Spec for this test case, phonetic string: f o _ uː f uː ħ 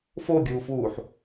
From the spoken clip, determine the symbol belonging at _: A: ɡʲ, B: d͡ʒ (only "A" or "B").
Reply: A